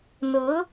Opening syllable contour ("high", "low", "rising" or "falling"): rising